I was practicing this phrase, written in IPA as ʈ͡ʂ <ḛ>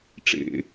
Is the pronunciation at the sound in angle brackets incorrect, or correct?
correct